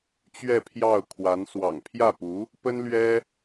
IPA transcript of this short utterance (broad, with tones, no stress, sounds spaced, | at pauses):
t͡ɕ ɥ ɛ˥˧ pʰ j ɑ˥˩ ʊ̯ kʰ w a˧˥ n s w ɑ̰˨˩ ŋ pʰ j ä˥˩ p u˧˥ | p ə˥ n l ɥ ɛ˥